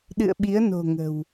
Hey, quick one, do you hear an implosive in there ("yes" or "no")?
yes